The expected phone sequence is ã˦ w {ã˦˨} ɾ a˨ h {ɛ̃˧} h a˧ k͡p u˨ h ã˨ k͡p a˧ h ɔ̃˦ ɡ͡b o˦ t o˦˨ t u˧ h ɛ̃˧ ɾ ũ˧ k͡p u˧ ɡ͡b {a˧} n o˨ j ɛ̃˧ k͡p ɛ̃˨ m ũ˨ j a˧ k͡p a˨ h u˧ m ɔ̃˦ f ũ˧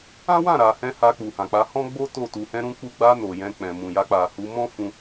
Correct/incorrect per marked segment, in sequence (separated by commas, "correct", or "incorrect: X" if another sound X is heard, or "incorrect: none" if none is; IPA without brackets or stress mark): correct, correct, correct